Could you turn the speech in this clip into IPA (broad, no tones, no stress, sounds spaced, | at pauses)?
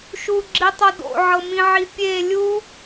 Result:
ʃ u ɡ͡ǁ i tˤ o d o̰ ʕ ɤ m ĩ ʕ i pʲ e lʲ u